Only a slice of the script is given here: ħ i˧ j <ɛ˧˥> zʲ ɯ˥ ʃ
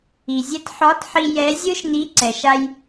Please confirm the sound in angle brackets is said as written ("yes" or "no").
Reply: yes